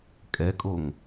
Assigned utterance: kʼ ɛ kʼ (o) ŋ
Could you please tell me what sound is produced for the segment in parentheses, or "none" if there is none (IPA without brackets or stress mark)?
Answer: o